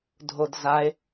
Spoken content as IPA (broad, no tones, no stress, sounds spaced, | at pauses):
dʱ o d z a e̯